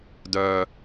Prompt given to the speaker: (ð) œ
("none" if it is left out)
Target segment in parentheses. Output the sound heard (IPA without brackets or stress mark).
d